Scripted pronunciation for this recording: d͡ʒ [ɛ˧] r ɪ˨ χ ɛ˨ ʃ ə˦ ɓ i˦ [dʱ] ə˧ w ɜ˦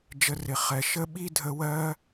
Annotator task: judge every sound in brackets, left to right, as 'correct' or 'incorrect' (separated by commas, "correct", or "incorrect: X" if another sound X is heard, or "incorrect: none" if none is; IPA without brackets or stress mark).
incorrect: ə˧, correct